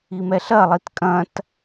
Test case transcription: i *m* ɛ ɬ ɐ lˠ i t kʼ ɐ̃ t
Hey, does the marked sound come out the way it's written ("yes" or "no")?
yes